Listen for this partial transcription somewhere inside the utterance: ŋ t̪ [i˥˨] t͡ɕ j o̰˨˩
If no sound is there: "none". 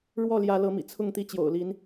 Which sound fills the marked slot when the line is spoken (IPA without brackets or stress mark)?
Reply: i˥˨